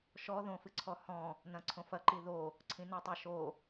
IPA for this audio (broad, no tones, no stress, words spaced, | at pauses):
ʃɔðõfɨǀʰɔ hɔ̃ | nɐ̃ǀʰõfɐǃi ðo | ǀʰĩnotˤaʃo